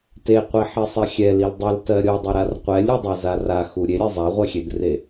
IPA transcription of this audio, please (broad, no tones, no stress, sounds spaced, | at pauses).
t e qʷ i ħ e sˤ ɛ xʲ ɛ l i l dˤ a l t ɜ ɾʲ o dˤ ʏ ɾ a r qʷ ɛ lʲ u dˤ a z a r a x u ɾʲ e ɾʲ ɛ zˤ a ʁʷ ɜ xʲ e d r e